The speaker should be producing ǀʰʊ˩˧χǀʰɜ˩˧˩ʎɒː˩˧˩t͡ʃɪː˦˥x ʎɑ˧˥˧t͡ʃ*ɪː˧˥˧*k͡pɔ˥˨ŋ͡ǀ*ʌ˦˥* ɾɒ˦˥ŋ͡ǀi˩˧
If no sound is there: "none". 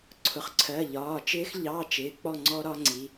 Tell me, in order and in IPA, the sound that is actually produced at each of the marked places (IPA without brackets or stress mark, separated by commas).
ɪː˩˧˩, ɔ˦˥